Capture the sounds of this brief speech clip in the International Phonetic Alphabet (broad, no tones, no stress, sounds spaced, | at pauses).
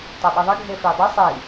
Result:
tˤ o ɓ i ðˤ ə ɡʱ e f i dˤ ə sˤ i